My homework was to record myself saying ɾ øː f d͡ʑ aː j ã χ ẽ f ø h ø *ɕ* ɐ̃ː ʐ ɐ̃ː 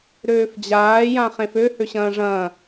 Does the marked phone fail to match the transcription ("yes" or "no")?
no